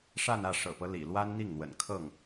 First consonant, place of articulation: retroflex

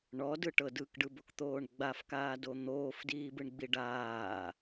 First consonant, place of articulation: retroflex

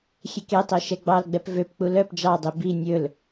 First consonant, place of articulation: velar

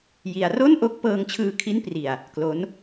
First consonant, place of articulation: palatal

